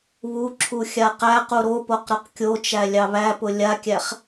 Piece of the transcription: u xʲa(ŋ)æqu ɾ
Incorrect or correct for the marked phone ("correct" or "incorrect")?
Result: incorrect